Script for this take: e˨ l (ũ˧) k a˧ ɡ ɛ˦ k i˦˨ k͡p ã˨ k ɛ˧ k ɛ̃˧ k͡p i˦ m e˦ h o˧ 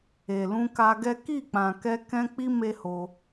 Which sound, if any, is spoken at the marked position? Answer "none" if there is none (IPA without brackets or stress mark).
ũ˧